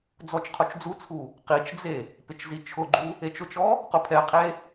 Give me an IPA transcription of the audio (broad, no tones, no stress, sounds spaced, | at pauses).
d͡z ɔ t͡ʃ qʰ o t͡ʃ d͡z u t͡sʰ u | q i t͡ʃ d͡z e | p ɪ t͡ʃ z i t͡ʃʰ ʊ ɡ͡ǃ u | e t͡ʃ ʊ t͡ʃ ɔ | q ʊ pʰ ɛ qʰ e